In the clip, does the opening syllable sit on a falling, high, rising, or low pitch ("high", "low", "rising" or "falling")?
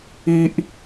high